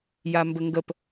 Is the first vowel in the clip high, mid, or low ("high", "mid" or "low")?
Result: low